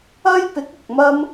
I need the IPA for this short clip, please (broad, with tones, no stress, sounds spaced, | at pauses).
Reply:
ɐ˥ j p ɪ˨˥ k̚ ʊ˨ k̚ m ɐ˥ m